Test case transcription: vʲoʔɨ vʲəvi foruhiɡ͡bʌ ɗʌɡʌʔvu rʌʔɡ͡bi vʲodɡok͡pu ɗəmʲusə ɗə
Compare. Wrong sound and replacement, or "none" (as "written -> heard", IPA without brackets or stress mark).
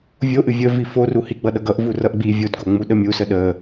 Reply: k͡p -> ŋ͡m